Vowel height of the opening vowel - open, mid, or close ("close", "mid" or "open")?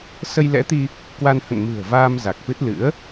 mid